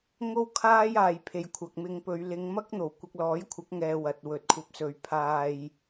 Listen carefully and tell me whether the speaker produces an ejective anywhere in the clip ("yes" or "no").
no